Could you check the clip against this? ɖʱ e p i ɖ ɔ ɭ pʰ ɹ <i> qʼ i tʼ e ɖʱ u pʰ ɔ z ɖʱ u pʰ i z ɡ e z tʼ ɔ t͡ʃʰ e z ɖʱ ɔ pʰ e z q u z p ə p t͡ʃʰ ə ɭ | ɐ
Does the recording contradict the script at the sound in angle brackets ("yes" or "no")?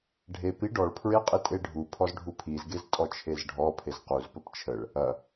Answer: yes